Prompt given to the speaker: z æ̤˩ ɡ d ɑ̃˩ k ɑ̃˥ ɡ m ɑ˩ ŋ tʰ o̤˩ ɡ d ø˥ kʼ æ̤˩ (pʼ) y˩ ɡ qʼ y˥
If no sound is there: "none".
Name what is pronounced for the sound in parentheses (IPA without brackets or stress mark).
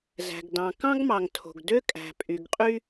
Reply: pʼ